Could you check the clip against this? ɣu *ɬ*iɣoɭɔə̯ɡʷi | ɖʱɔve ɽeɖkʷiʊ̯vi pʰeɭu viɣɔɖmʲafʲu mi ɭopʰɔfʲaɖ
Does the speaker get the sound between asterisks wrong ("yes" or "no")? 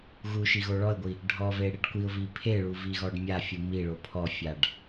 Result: yes